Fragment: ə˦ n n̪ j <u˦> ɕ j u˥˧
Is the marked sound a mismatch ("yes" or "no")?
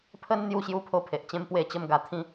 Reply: yes